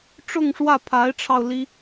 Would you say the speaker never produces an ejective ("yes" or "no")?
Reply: yes